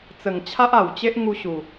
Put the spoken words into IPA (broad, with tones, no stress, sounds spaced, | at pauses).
t͡s ə˨˩ ŋ t͡ɕʰ a˦ ʔ a˨˩ w t͡ɕ e˦ ʔ ŋ u˧ ɕ u˨˩